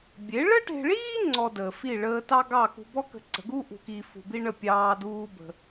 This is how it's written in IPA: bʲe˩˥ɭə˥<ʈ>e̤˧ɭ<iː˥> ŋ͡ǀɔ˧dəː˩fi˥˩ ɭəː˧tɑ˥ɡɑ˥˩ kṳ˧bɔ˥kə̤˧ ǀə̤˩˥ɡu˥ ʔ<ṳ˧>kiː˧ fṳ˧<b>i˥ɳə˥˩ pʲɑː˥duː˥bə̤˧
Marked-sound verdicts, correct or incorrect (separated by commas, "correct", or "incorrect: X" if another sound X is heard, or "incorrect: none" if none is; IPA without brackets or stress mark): correct, correct, correct, correct